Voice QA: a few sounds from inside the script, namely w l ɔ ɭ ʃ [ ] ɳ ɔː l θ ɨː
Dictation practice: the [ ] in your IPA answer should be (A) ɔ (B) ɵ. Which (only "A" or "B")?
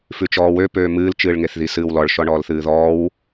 A